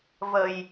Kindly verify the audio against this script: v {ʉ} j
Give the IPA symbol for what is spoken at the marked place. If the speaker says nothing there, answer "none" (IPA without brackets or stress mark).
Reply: ə